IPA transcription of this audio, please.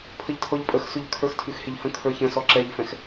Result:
pʰ ə ʎ tʰ ɔ ʎ pʼ ə x s ʉ ʎ kʰ ə˞ x tʰ ʉ x h e ʎ h ə̃ kʰ ə˞ ç ə̃ s ɔ ǁ ɛ ʎ f ɛ̃ x

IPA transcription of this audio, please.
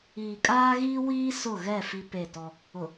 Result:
iː˨ kʼ aː˦ ɣ iː˦ w iː˦ s ʊ˦˨ ɣ ɛ˦˨ f i˦ p e˦˨ t ɔ˦ | ʊ˨

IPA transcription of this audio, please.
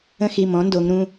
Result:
ə̃˧ x i˩˧˩ m ɔ̃˩˥ n d o˩˧ ŋ ɾ ũ˩˧˩

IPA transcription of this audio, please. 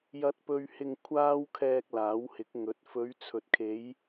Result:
j ɐ˨ t̚ p ɵ˨ ɥ h ɪ˨ ŋ kʷʰ aː˧ w kʰ ɛː˨ k̚ l aː˨˥ w h ɪ˨˥ k̚ ŋ ɵ˨˥ t̚ f ɵ˨˧ ɥ t͡sʰ ɵ˨ t̚ kʰ e˨˧ j

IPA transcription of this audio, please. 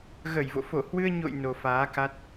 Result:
ɣ ə˧˩ j v o̰˧˨ f o˧˩ h w ɨ˧ ə̯ ɲ o̰˧˨ j n o˨˩ f aː˨˦ k a˦˥ t̚

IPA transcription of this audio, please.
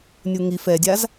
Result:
nʲ u ŋ i f ɛ dʲ a z

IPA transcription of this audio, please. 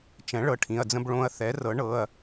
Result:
t͡ʃ ɛ̃˩˥ ɭ ɤ˩˥ ʈʰ ĩ˩˧˩ ɐ̯ d͡z ə̃˧ b ɭ õ˧ ɐ̯ θ ɛ˩˥ r ɤ˩˥ ɳ ɤ˩˧˩ ɐ̯

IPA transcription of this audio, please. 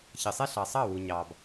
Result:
ç ə˩ sˤ ɛ˥ ɬ ɑ˩ sˤ ɑ˥˩ w u˩ ɲ ɑ˩ b

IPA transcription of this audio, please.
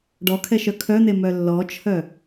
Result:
ɖ ɔ kʰ ɛ ʃ œ kʰ œ n̪ e m œ lː ɔ t͡ʃʰ œ

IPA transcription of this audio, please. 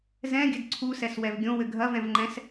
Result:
z ɛ̃ ɡʲ ɘ d ǀʰ u s ɛ s w ɛ v ɡʲ õ w ɘ ɡʱ ɐ v ɛ̃ v ŋ͡ǃ ɛ̃ s

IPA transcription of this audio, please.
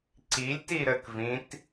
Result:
ǀ i lʲ t i ɾ ə k v ĩ t

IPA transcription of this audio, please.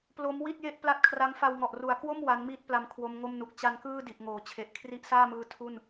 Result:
p l o˦˥ m w i˥˩ t̚ j e˥˩ ʔ p l a˥˩ t̚ kʰ r a˦˥ ŋ f a˧ w ŋ ɔ˨˩ ʔ r u˨˩ a̯ k w o˥˩ m w a˦˥ n m iː˥˩ t̚ p l a˧ m kʰ w o˦˥ m ŋ o˥˩ m n u˨˩ k̚ t͡ɕ a˧ n k ɯː˥˩ d i˨˩ ʔ ŋ oː˩˦ t͡ɕʰ e˨˩ ʔ kʰ r i˦˥ ʔ s aː˥˩ m ɯː˦˥ tʰ u˥˩ n

